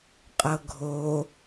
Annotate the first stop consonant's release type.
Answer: ejective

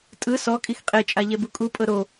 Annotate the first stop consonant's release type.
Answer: ejective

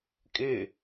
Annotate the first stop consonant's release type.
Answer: ejective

